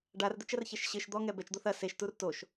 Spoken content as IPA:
ɖ a r d̪ ɘ t͡ʃ ɐ r ç ɛ ʃ ɕ ɘ ʃ d̪ ɔ ŋ ɛ b ɛ t͡ʃ d̪ o θ ɐ s e ʃ t u r t o ʃ

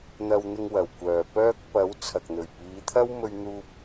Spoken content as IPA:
n̪ ɐ˧ w n̪ ɪ˧ ŋ w ɐ˨˩ w kʷ œː˨ p œː˥ k̚ p ɐ˨˥ w t͡sʰ ɐ˨ k̚ n̪ ɵ˨˩ ɥ p iː˨˧ t̪ʰ ɐ˥ w m ɵ˧ ɥ n̪ uː˧ p̚

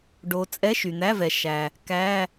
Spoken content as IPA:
ɖ o˧˥ t͡sʼ ɛ˧˥˧ ʃ y˩ n̪ æ˧˥˧ v ɛ˩ ʃ æ˩ | k æ˧˥˧

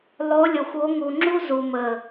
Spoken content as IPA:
lˠ o˨˦ lʲ o˨ xʷ o˨˦ ŋ u˨ ŋ͡ǁ u˦ z u˨ m ə˨

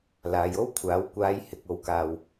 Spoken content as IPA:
l aː˨˧ j o˥ w kʷʰ aː˨˥ w kʷ aː˨˧ j h ɪ˨ k̚ o˨˧ w k aː˨ w

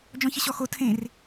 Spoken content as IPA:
d͡ʒ ɔ̃ ç ə ɕ ɔ x o tʰ ẽ r

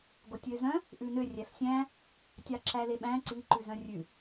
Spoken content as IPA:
ɡ o tʲ ø z œ̃ | ʔ ʉ n ø rʲ æ f sʲ æ̃ | tʲ ɑ ǁ æ l e ɓ æ̃ ǀ i ǃ ʉ z œ̃ rʲ ʉ

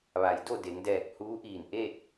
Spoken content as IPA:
ʋ a˩˧ j d o˥˨ d e˩˧ ŋ d ɛː˧˩ k̚ h uː˧˥ ʔ iː˧˩ n ʔ e˥˨ t̚

